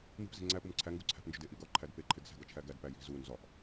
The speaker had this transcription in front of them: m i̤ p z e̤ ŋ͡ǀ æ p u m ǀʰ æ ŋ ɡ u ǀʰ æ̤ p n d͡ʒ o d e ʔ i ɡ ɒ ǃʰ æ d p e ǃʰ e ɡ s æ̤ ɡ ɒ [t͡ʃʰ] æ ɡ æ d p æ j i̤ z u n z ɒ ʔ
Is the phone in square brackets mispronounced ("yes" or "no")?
no